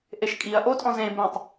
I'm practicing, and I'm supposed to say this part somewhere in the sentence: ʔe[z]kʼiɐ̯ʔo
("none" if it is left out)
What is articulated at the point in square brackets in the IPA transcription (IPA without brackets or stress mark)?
ʃ